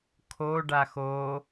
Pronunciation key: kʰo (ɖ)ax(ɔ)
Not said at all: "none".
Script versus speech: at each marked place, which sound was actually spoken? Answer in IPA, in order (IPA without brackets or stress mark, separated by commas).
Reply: ɖ, o